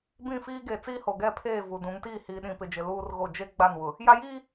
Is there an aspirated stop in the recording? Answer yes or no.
yes